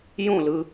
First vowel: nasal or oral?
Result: nasal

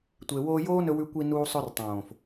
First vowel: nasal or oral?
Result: oral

